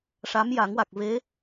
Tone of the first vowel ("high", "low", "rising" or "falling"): rising